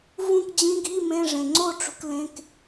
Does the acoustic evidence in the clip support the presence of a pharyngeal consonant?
no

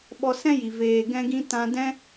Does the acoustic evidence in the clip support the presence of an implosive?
yes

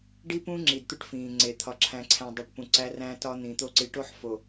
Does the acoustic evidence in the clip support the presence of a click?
yes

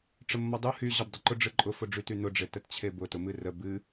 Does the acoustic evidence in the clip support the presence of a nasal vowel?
no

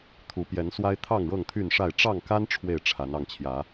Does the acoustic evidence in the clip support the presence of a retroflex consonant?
yes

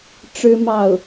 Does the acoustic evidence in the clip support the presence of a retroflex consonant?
yes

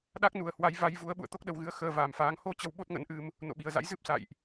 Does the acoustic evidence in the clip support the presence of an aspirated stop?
no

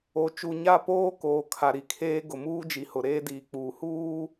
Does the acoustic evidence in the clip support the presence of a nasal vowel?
no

